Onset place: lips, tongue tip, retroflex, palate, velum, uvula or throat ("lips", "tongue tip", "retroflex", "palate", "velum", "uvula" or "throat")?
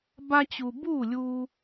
lips